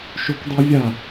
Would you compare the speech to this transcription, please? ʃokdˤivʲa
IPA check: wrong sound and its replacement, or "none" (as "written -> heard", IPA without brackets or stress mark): none